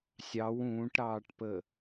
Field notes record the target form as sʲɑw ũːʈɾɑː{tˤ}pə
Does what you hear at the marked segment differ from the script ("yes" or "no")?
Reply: yes